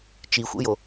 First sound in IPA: t͡ʃ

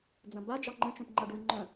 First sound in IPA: d͡z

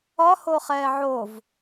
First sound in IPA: ɒ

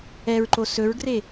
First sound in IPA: ɛ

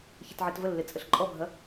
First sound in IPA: ç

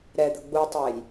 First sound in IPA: ɾ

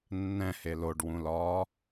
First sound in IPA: nː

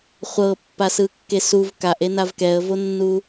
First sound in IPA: χʷ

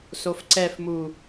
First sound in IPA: s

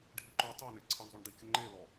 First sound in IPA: ɖʱ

